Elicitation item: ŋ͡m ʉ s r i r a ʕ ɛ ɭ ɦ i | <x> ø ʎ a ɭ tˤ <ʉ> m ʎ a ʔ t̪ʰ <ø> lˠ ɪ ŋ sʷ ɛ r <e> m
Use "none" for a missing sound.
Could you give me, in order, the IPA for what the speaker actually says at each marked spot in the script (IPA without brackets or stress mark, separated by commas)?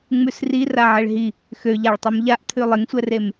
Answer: x, ø, ʉ, e